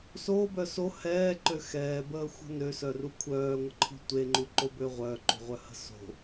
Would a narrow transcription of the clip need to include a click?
yes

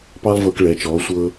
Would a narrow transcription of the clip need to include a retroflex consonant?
yes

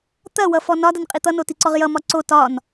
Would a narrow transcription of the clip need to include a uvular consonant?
yes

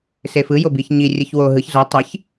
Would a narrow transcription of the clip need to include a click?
no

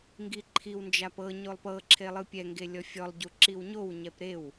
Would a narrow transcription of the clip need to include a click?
yes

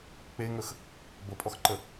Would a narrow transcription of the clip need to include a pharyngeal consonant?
no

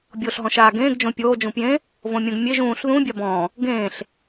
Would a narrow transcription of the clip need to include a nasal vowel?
yes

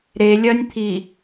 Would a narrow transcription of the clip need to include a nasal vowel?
no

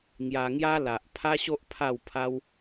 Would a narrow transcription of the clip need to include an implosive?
no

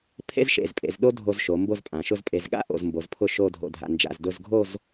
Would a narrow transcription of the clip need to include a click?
no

